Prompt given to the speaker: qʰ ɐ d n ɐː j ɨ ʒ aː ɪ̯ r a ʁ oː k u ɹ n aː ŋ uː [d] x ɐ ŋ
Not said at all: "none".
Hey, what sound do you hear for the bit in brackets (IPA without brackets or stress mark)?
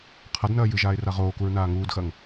d